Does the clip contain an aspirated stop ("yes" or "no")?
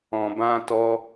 no